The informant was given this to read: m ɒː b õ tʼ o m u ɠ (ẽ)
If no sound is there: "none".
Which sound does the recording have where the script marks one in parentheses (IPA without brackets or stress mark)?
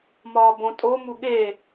e